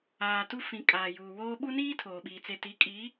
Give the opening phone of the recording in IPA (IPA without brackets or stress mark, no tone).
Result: aː